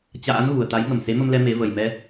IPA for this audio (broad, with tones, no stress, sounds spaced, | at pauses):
t͡ɕ a̰ː˧˥ n ɣ u˨˩ ə̯ t̪ a˨˦ j ŋ ə˨˩ m s e˨˦ m ə˧ m l ɛ˧ m e˨˦ v ə˨˩ j m ɛ˧